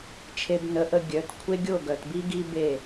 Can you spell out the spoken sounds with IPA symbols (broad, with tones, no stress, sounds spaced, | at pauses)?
t͡ʃʰ e˧ b n ə˨˦ ʔ ə˧ ɡʲ œ˨˦ t kʷʰ e˦ ɡʲ o˦˨ ɡ œ˨ t b i˦ ɡ i˦ b e˦˨